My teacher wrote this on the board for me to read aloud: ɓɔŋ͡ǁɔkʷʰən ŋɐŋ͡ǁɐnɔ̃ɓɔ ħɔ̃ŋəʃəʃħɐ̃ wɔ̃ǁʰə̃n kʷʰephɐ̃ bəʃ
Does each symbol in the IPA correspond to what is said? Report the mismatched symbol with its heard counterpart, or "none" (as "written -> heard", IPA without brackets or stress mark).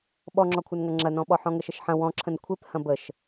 none